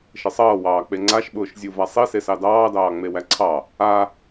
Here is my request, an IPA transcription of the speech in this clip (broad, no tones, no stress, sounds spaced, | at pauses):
ʃ ə sˤ ʌː w ɑː k͡p e ŋ͡ǀ a ʃ ɓ ʊː ʃ zʲ u v a sˤ i s e s ɑ d ɑː d ɑː ŋ͡m e w æ ǀʰ ɑ | a